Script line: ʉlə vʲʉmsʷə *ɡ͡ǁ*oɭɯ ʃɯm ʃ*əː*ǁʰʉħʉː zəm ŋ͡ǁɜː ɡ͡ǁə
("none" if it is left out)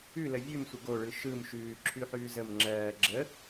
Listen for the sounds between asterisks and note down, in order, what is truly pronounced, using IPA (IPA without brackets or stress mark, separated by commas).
ɡ, ʉː